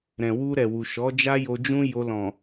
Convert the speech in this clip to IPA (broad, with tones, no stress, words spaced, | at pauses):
ɾɛ̃˨wu˧ɾɛ˨wu˨ ʃɔ˨˦d͡ʒa˦jo˧ d͡ʒũ˦jo˧lɔ̃˨